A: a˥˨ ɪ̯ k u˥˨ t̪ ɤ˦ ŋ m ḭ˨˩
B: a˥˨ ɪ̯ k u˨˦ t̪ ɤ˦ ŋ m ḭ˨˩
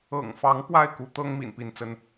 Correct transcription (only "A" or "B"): B